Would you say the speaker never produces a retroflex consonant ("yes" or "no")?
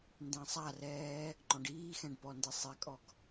no